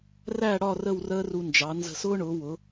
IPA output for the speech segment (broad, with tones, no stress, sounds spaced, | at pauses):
r æ˥˧ ɽ ɒ˥˧ r ə˥˧ w r əː˥ r u˧ n d͡ʒ ɑ˩˧ n z ə̤˧˩ s ʊː˥ ɳ ʊː˩˧ w ʊ˩˧